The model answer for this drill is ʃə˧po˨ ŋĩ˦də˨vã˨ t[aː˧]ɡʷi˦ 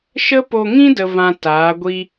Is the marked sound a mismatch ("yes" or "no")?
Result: yes